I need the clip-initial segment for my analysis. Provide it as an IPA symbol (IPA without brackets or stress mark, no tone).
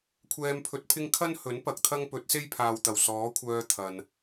kʷʰ